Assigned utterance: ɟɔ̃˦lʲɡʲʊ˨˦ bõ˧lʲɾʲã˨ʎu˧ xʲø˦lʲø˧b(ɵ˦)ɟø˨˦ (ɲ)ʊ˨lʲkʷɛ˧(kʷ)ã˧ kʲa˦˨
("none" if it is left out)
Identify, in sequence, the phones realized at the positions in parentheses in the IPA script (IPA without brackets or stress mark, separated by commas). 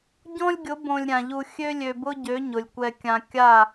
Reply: ʊ˦, ɲ, kʲ